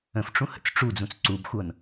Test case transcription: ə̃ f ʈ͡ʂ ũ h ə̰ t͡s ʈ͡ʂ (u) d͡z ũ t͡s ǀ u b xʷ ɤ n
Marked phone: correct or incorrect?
correct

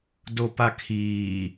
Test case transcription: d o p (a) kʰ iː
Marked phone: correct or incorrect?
correct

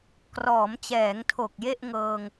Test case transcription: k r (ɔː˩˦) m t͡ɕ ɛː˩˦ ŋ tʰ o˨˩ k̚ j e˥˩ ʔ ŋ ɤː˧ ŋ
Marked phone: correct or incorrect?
correct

